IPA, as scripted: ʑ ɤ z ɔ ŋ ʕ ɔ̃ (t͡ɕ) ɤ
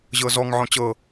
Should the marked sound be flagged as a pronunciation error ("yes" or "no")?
no